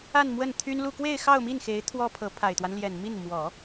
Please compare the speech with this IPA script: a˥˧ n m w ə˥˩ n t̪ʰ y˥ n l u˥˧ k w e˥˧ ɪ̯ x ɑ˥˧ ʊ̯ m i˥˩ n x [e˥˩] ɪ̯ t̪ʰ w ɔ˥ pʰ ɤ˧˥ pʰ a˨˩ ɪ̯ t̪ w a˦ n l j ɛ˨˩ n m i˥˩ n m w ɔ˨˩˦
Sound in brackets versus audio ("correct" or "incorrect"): incorrect